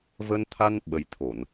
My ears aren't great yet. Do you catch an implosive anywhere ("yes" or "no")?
yes